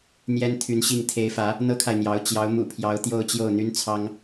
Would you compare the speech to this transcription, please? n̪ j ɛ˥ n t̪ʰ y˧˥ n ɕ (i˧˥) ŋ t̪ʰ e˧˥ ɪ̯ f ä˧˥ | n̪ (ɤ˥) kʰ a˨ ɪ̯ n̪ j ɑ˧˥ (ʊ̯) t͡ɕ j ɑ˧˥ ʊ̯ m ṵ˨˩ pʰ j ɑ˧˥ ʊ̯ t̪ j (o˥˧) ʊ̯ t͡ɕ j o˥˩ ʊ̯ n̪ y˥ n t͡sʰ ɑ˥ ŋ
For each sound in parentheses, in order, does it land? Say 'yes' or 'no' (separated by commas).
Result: no, yes, yes, yes